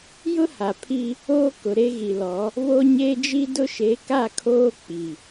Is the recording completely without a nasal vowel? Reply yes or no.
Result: yes